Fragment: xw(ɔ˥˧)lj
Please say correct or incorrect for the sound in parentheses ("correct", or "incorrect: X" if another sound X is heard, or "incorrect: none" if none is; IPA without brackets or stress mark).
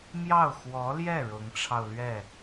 incorrect: ɔ˧˥